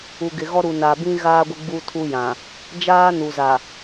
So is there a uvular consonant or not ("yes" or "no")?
no